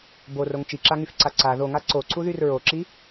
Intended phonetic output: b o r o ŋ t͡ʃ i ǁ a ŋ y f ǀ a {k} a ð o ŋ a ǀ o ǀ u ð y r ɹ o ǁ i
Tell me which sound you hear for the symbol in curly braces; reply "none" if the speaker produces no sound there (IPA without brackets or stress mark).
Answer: ǀ